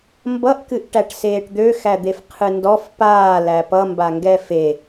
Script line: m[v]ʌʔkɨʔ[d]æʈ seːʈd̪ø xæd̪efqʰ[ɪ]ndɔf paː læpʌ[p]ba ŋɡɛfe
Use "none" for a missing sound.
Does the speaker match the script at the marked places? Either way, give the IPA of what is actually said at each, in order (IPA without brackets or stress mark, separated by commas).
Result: b, ʈ, ɨ, m